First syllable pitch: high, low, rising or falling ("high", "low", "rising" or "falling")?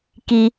low